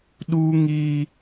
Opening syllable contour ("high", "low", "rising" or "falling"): high